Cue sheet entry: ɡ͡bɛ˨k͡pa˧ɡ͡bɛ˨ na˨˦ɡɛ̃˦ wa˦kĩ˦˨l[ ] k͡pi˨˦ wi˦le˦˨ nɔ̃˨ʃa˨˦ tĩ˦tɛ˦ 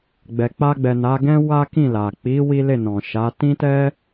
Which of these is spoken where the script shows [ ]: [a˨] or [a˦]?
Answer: a˨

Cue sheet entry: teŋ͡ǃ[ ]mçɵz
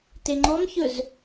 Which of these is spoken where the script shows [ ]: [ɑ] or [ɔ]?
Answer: ɔ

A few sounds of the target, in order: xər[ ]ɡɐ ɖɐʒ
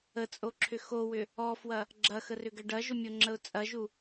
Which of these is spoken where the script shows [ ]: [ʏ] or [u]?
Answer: ʏ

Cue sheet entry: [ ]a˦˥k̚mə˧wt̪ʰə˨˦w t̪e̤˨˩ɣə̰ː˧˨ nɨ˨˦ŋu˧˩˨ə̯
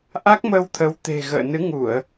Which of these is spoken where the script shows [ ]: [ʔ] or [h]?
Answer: ʔ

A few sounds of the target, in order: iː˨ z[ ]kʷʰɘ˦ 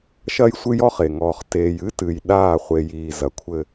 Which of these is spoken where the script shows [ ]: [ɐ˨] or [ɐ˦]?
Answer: ɐ˨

